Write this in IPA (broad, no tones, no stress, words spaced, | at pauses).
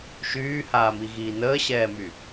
ʃyːhaːmiɣiː nəːɕɛːmy